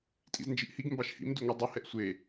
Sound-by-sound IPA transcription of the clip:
tʼ ḭ z n d͡ʒ i ʔ h i ɡ m b ɑ ʃ h ḭ m d ʉ ŋʷ i dˤ o h ɛ ʔ sʷ e

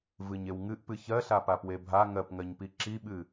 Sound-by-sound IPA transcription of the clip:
v ɨ ɲ e w ŋ ɨ ʔ p ɨ ç ɜ ɬ a p a p w e bʱ a ŋ ɜ p ŋ ɜ ɲ p i ǁ i ɓ ɨ

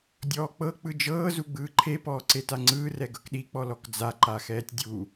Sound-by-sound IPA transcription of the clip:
dʲ ɔː k͡p ɤ k͡p ɯ d͡ʒ ɤː z u ɡ͡b ɯː ǃʰ e p ɔː ǀ e t a ŋ͡ǀ ɯː r ɛ ɡ ɤ k ɗ i k͡p ɔ l ɔ k d͡z a ǃ a x ɛː tʲ dʲ u

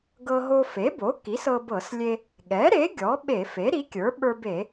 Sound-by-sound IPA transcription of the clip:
ɡ ɤ˧ ɦ o˧ f e˩˥ b o˩˥ k i˩˥ s ɤ˧ b ɤ˧˩˧ s lʲ e˧ | ɠ ɛ˩˥ ɾ e˩˥ ɡʲ ɔ˩˥ ɓ e˧˩˧ f e˩˥ ɾ i˩˥ kʲ ə˞˩˥ ɓ ə˞˧ b e˧˩˧

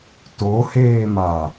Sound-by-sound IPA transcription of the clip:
t o h eː m a

